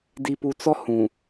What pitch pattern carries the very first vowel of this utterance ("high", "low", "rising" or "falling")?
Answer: low